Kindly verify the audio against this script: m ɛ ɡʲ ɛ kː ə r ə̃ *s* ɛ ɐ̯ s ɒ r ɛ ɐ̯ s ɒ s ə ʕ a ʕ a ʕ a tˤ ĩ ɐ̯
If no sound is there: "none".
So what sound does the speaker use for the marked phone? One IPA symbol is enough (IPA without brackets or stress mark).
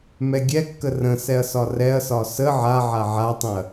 s